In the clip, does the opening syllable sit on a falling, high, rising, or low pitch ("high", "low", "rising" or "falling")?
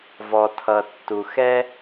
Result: low